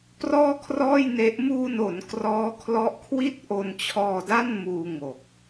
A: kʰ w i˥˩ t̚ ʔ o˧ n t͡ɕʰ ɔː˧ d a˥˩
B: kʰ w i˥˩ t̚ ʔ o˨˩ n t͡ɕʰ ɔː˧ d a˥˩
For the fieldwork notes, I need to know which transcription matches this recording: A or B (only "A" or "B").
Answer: A